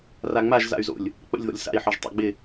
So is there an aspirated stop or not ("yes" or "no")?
no